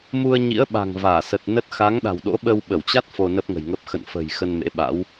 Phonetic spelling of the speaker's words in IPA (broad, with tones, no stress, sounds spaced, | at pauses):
m u˧ ə̯ ɲ ḭ˧˥ ə̯ ɓ a̤˨˩ ŋ v aː˧˩ s ə˨˩ t̚ n ə˦˥ t̚ x a˨˦ ŋ ɗ a̤˨˩ w ɗ o̰˧˥ ɓ ə˧ w ɓ ə˧˩ w t͡ɕ a˦˥ t̚ f o˧ n ə˦˥ p̚ ŋ ə̤˨˩ j ŋ ə˦˥ p̚ x ə̰˧˨ n f ə̤˨˩ j x ə˧ n m ḛ˧˥ ɓ a̰˧˥ w